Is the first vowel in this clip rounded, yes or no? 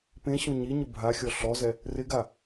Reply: no